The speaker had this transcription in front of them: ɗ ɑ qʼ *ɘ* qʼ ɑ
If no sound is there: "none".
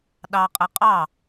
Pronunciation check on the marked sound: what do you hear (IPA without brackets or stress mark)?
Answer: ɘ